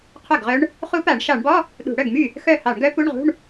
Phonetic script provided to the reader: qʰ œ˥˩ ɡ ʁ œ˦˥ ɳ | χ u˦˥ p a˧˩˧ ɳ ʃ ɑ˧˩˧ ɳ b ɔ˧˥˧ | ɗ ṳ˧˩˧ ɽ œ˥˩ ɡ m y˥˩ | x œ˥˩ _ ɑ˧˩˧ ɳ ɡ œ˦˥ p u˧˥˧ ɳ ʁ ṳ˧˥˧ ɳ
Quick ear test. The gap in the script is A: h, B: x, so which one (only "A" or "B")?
A